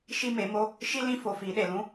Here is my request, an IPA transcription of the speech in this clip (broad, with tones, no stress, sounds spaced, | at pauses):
ʃ i˦ m e˨˦ m o˦ | ʃ i˦ l ĩ˦ f o˧ f i˨˦ ɗ e˨ l ũ˦